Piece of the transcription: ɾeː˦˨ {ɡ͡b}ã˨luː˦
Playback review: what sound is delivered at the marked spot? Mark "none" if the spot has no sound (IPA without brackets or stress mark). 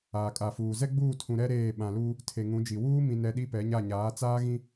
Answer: ɓ